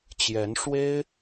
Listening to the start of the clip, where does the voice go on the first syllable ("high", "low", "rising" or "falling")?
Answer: rising